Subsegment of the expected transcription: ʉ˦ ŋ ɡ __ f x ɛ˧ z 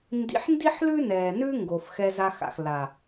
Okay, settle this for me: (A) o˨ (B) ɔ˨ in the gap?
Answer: A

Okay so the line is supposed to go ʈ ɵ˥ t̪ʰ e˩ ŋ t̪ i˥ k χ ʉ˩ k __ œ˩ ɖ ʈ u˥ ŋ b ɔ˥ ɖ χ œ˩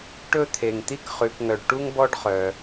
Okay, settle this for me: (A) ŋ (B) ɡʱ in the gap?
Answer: A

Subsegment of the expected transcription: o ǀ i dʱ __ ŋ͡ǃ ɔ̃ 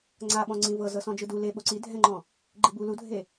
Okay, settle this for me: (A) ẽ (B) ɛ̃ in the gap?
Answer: B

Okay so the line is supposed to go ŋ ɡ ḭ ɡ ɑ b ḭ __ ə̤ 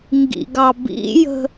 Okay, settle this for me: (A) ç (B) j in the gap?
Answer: B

